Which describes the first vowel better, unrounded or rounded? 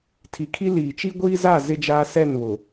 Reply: unrounded